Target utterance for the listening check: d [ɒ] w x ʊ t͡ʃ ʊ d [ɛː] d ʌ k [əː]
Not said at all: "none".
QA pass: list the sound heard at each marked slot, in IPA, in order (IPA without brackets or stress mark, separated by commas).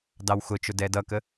ɑ, ɛː, ə